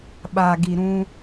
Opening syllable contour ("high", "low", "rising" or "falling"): low